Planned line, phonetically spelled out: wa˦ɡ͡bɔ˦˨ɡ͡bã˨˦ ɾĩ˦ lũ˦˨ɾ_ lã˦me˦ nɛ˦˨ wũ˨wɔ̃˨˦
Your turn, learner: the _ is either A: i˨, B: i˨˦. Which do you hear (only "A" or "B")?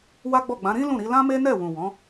B